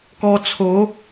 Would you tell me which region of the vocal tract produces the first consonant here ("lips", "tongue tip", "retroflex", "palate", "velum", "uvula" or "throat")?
velum